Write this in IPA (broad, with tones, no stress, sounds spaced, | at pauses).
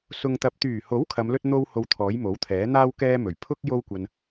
s ʊ˨ ŋ t̪ ɐ˨ p̚ t̪ yː˨˩ h o˨˥ w kʰ ɐ˨˧ m l ɵ˥ t̚ n̪ o˥ w h o˧ w t̪ʰ ɔː˨˥ j m o˨˥ w t̪ʰ ɛː˨˥ n̪ aː˥ w k ɛː˥ m ɵ˨˩ ɥ pʰ ʊ˥ k̚ j o˥ w kʷ ɐ˧ n